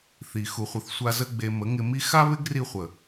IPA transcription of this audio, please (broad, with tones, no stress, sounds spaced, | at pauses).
θ i˨ x u˧ χʷ ə˧ θ sʷ a˦ z ə˦ ɡ͡b e˧ m ə˨˦ ŋ ɪ˧ m i˦ x a˦ β ɪ˦ ɡ r i˧ χʷ ə˨